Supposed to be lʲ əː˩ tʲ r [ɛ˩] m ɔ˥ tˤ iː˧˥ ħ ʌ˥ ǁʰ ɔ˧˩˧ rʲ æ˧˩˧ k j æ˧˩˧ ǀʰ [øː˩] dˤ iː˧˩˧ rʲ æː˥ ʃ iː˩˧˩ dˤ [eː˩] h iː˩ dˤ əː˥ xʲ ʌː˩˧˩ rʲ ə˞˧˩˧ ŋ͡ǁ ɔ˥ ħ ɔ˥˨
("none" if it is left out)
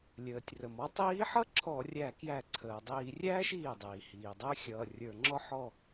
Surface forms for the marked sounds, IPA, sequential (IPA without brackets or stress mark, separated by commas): ə˩, əː˩, iː˩